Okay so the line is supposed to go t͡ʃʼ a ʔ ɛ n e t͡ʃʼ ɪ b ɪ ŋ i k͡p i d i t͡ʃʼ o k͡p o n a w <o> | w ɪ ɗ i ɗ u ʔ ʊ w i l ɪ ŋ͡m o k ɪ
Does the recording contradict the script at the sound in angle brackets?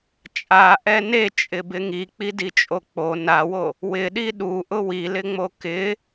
no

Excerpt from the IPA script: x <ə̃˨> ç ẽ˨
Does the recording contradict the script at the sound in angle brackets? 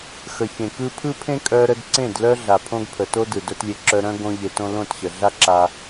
yes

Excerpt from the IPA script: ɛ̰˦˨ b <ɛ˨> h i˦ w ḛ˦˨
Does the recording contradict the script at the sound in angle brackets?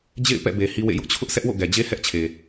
yes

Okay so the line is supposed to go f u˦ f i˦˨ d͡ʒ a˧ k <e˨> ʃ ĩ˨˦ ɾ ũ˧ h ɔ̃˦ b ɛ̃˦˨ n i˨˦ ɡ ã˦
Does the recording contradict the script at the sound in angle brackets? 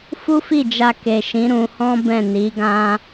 no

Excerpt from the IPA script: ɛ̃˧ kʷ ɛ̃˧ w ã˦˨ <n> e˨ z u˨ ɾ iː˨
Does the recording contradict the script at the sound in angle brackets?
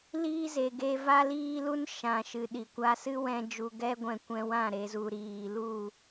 yes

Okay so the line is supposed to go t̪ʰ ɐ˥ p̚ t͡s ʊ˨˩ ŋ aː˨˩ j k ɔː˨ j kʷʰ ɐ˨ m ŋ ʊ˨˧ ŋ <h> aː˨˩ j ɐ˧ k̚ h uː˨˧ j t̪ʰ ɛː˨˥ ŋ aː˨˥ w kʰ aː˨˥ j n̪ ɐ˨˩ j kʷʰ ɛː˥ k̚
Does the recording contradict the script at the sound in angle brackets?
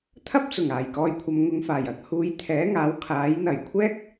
yes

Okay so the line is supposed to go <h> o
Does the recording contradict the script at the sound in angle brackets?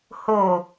no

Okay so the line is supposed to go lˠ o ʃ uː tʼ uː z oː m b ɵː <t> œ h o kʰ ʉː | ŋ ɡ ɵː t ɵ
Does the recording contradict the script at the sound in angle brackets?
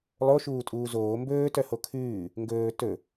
no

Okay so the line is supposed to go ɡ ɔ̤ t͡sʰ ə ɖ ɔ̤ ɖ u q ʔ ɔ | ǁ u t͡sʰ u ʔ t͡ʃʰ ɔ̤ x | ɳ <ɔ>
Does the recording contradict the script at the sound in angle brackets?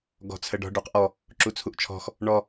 no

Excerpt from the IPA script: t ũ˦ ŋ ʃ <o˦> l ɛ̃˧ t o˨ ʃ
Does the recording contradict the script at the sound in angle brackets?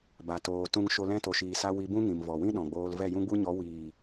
no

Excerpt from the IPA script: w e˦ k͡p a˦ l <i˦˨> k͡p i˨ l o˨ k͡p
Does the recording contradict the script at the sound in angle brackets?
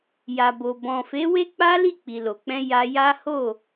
no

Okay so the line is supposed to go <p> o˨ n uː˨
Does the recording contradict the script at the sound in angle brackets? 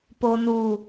no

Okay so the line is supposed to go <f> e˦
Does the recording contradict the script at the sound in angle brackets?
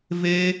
yes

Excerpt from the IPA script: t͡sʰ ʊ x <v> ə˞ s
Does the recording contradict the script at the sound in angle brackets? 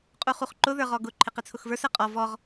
no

